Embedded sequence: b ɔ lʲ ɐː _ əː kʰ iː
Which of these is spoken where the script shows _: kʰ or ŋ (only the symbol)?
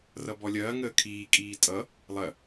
ŋ